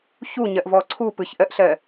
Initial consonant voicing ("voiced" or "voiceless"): voiceless